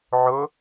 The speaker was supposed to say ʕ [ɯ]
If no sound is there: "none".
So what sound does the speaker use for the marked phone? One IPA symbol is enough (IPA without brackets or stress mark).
ʊ